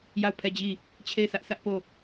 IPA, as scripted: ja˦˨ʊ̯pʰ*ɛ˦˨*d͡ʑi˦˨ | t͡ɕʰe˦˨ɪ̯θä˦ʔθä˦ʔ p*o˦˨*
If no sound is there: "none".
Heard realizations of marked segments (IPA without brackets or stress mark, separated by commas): ɛ˦˨, o˦˨